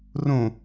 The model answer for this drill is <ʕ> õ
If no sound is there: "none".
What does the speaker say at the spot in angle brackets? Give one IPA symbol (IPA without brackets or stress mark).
r